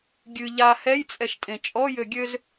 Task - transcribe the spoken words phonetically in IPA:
ɡʲ ɨ ʎ a h ɛ j t͡sʼ ɛ ʃ tʼ ẽ t͡ʃʼ ɔ j ø ɡʲ ø z

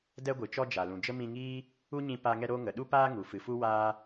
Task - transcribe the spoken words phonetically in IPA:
d ɛ˧ ɡʷ ɨ˨ t͡ʃ ɔ˧ d͡ʒ a˨ l ũ˨ d͡ʒ ə˦ m ĩ˧ ŋ iː˦ | u˦ ɲ ĩ˧ p a˧ ŋ ɛ˧ ɾ oː˧ ŋ ə˨ ɗ u˧ p aː˧ ŋ u˨ f ɨ˨ f u˧ w aː˧

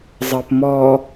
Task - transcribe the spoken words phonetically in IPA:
zˤ əː p m ɔː

